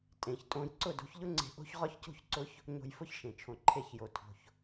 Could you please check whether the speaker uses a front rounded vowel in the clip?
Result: no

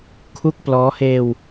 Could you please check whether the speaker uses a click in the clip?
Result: no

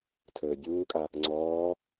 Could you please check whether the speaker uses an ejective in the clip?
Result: yes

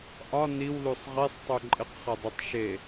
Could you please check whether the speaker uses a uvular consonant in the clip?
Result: yes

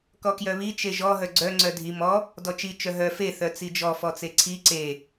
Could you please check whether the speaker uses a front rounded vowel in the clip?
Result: yes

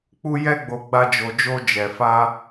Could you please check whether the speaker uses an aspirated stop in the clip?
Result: no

